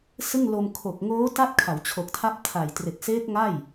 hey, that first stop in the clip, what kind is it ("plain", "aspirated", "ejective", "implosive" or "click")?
aspirated